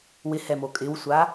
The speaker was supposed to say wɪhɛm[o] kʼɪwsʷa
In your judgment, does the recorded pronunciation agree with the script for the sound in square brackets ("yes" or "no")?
yes